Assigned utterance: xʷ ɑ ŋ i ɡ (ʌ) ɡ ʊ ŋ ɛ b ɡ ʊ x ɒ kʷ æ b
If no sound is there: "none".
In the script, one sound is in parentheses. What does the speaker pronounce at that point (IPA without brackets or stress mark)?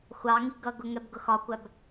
ʌ